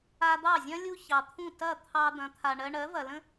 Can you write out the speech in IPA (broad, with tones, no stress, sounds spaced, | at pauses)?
a˧ d̪ ɑ˥˩ zʲ ɐ̃˥ lʲ u˥ ç ɑ˩ t̪ʰ ũ˥˩ t ɐ˥˩ t̪ʰ ɑ˧ d̪ ɐ̃˩˥ t̪ʰ a˩ ɳ ɜ˧ ɳ ɜ˩˥ v ɐ˩ l ə̃˥